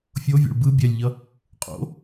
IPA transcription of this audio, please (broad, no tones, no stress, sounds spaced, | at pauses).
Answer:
fʲ o vʲ o̰ ɭ b ɯ bʲ ɛ lʲ ʎ ʌ | qʼ o̰